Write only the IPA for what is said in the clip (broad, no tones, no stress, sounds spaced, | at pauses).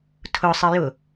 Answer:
tʰ ʊ sˤ ɪ j ʊ